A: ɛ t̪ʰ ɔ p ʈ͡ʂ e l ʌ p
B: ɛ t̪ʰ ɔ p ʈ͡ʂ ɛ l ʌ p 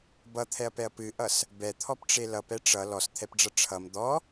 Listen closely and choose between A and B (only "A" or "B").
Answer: A